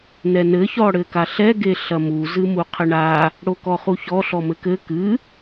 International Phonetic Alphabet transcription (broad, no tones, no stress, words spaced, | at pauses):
nɛnɘ çɔɽɘkaɬɛ ɡeɬɐmu zɨmuqʰɘɳa | ɽokɔχuçɔ ɬɔmɘkɘ kɨ